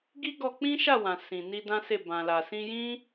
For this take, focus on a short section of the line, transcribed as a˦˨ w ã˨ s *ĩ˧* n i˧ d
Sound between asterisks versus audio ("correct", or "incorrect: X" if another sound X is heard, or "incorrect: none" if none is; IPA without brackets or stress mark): incorrect: ĩ˨